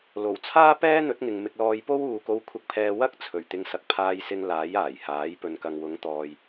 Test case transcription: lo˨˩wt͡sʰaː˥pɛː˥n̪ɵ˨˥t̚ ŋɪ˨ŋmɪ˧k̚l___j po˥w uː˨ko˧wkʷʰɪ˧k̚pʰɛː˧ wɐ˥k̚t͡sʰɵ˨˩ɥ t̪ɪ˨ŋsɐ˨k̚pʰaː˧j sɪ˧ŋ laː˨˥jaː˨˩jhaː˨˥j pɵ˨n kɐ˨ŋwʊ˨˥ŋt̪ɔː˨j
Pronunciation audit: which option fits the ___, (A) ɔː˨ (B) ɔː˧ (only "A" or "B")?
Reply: B